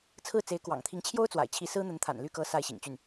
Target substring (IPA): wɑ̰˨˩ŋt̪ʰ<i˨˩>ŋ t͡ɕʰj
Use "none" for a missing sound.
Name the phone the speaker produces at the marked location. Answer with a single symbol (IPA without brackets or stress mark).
i˧˥